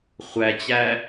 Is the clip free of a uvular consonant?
no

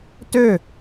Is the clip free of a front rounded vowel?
no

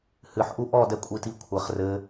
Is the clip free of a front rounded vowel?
yes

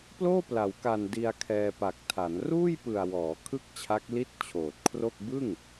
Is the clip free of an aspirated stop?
no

